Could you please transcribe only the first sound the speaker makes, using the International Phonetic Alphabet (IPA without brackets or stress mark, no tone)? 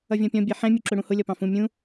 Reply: ʌ